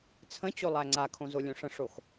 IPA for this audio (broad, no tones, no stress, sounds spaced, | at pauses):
t͡sʰ ə̃ t͡ɕ o lˠ æ ŋ͡ǀ a kʰ õ z o lʲ õ ʂ ə̃ ʂ o x